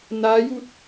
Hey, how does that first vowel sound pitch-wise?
rising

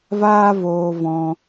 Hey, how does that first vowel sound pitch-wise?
high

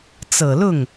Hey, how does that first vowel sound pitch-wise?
low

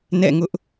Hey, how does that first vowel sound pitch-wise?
falling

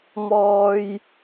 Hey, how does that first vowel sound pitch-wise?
low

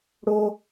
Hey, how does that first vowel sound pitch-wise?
high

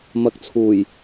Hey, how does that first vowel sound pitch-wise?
rising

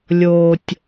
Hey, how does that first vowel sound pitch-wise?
low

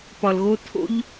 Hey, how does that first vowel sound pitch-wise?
low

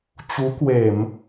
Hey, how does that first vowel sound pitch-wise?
rising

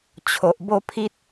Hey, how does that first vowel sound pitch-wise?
low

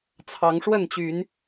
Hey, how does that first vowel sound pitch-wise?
rising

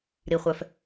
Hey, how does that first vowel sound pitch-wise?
low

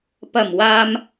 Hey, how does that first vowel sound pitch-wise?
low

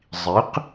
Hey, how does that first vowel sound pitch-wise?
rising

